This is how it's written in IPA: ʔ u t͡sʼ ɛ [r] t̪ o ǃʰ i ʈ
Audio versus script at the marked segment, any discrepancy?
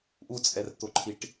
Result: no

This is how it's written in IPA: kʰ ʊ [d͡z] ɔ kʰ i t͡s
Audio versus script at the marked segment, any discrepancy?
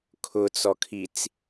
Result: yes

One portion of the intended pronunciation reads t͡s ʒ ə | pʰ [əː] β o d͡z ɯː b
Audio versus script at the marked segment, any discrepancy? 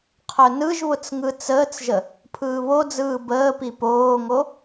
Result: yes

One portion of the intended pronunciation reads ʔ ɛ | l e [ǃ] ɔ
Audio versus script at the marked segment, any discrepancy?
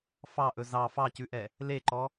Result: no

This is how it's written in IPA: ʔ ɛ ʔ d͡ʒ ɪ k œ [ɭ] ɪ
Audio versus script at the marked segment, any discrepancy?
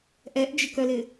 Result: yes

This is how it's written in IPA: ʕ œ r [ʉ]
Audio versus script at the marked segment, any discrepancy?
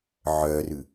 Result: no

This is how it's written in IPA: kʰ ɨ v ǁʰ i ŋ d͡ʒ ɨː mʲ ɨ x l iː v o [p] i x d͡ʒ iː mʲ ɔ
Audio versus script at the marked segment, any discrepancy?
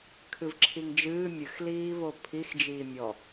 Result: yes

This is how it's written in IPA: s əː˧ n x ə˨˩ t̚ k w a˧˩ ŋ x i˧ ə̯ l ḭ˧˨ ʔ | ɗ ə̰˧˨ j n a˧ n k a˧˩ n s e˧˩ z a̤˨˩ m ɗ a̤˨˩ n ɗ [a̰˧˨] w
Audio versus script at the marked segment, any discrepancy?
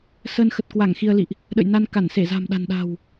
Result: yes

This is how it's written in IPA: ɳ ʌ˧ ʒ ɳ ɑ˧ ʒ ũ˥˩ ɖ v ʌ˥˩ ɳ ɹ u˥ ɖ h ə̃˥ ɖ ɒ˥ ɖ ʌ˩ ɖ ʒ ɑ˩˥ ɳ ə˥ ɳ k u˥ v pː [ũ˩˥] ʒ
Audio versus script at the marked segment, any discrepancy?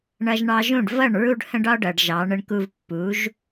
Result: yes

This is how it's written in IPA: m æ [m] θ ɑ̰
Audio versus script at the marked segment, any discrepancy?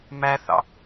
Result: yes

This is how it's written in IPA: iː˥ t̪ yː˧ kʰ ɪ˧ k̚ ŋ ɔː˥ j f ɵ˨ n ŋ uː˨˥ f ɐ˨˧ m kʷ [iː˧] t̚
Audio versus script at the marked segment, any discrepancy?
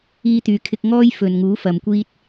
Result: yes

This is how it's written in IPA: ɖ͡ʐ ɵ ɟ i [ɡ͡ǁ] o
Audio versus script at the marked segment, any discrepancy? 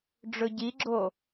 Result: no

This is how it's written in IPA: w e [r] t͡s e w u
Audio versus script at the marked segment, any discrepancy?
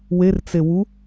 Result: no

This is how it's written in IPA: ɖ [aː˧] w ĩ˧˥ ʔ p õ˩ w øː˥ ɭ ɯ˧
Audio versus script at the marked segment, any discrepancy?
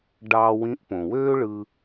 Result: yes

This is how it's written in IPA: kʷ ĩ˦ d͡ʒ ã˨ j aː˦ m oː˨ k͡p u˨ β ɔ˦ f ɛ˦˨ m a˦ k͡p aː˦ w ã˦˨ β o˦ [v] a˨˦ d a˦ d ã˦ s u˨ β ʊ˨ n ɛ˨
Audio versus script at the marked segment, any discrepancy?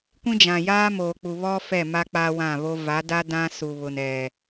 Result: no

